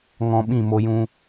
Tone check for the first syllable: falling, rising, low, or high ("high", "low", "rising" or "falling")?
low